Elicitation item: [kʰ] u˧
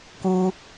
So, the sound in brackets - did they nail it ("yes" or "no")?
no